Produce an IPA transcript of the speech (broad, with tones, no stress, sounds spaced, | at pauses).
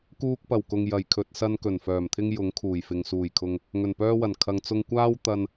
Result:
k uː˧ k̚ p ɐ˨˩ w k ʊ˨ ŋ j ɐ˨˩ j kʰ ɵ˨ t̚ s ɐ˧ n k ɵ˨˩ n f œː˨˩ m t̪ʰ ɪ˧ ŋ j ʊ˨˥ ŋ kʰ uː˨˩ j f ɪ˨ ŋ s uː˨˩ j kʰ ʊ˨ ŋ | ŋ ɵ˨˩ n p œː˧ w ɐ˨˩ n kʰ ɐ˨˧ ŋ t͡s ʊ˧ ŋ kʷ aː˥ w t̪ ɐ˧ n